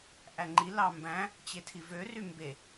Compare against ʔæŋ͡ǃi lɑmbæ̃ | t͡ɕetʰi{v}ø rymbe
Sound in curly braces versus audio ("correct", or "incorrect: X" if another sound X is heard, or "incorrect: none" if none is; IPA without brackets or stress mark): correct